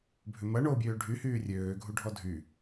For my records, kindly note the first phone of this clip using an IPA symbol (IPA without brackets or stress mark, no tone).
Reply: bʱ